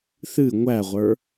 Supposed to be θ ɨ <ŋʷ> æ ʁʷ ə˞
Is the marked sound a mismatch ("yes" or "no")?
no